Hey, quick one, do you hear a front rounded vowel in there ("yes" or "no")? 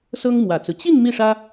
no